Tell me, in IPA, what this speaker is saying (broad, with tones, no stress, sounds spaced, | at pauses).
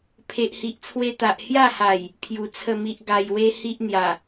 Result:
pʰ e˨ ʔ h i˨ ʔ t͡sʰ w e˧ t̪ a˨ ʔ h j a˥˧ h a˨˩ j | pʰ j u˨˩ t͡sʰ ə˥˧ m i˦ ʔ ɡ a˧ j w e˦ h i˦ ʔ n̪ j a˨˩